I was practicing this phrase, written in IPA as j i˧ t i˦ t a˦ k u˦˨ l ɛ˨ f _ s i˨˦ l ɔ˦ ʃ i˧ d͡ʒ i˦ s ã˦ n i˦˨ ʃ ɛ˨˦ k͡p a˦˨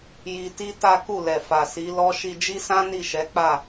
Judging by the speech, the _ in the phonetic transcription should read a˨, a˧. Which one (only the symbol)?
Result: a˨